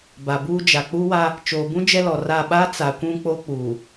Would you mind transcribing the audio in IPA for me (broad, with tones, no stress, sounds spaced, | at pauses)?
b a˨ b uː˦ d͡ʒ a˨ k͡p u˦ w a˦ | t͡ʃ oː˨ b ũ˦ d͡ʒ ɛ˦ l ɔ˨ r a˦˨ ɓ a˦ t͡s a˨˦ kʷ ũ˦ k͡p o˦ k͡p uː˨